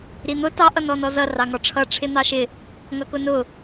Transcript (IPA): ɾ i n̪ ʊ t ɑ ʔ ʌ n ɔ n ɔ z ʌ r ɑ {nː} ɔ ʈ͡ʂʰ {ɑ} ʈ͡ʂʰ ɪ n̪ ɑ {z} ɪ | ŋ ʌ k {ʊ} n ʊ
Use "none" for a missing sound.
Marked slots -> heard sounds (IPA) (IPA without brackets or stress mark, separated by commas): ŋ, ʌ, ʃ, ʊ